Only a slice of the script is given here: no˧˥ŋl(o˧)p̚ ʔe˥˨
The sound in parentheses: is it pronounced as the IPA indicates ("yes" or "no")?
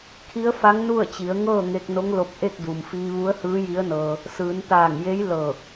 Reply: yes